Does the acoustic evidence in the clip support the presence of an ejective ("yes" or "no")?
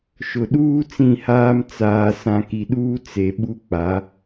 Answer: no